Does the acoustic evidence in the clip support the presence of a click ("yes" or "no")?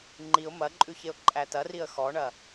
yes